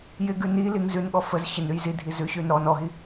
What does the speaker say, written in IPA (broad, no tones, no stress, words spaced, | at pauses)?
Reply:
jɪɡʉ niliŋ zʉnɠɔ fəz ɕɪnʉj zidʱi zʉɕʉn ɾɔn ɔɦi